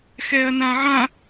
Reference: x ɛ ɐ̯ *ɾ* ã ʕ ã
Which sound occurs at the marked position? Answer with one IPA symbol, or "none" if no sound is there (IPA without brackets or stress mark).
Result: n